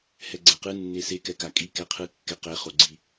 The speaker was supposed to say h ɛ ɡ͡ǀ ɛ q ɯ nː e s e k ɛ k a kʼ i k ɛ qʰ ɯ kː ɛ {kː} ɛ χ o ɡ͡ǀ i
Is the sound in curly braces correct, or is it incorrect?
incorrect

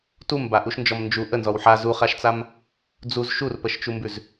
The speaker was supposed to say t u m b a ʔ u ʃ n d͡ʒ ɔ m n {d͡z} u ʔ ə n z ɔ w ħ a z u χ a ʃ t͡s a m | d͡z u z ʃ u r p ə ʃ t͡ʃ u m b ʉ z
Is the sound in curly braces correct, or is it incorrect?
incorrect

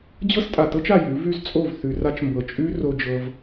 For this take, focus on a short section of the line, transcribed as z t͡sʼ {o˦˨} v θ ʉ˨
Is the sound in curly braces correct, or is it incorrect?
correct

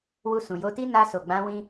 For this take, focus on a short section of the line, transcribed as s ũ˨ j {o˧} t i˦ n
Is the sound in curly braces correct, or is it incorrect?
correct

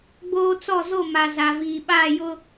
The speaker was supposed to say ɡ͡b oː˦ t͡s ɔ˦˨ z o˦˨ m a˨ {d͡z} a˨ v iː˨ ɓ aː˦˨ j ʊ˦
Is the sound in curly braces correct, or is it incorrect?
incorrect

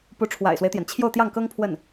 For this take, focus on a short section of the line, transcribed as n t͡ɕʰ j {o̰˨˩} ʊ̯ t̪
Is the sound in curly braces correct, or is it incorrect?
incorrect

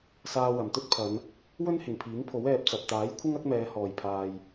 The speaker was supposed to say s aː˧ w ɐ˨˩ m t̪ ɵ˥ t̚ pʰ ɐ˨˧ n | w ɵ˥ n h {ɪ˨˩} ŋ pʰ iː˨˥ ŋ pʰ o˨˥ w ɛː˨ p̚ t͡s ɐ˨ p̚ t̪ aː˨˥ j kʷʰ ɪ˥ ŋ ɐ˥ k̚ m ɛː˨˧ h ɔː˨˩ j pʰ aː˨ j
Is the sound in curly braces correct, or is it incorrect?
correct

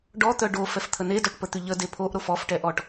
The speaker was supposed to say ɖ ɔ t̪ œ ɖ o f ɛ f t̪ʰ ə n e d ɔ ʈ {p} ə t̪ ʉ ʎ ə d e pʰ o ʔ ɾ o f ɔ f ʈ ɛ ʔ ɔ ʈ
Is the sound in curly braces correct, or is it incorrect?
correct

